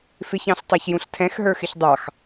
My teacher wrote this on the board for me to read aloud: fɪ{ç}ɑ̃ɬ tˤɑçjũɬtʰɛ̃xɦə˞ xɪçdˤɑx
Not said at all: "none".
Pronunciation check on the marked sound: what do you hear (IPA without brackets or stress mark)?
ç